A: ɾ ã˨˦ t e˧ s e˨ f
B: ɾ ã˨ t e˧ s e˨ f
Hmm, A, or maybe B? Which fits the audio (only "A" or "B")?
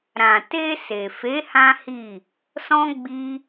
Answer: B